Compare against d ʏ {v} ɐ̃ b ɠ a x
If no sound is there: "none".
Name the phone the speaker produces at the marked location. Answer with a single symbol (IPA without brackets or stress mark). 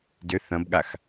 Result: θ